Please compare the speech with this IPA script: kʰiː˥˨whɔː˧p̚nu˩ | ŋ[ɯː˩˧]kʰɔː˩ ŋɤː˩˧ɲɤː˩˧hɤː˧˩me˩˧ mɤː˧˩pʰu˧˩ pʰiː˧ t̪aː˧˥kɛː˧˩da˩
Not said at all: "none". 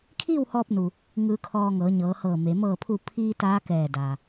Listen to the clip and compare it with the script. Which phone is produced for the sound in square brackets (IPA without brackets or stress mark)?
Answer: ɯː˩˧